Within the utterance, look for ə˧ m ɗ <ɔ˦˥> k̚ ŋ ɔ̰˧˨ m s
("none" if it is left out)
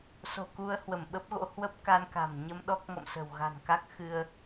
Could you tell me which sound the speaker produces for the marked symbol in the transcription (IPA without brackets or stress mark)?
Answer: ɔ˦˥